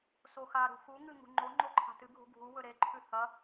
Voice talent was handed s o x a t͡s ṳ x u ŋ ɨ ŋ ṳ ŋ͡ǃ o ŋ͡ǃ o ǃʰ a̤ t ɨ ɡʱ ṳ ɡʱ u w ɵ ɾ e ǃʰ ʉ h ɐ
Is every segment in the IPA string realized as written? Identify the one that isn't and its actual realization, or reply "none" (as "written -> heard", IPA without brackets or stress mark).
t͡s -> ɾ